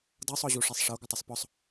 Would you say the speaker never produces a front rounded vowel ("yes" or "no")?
yes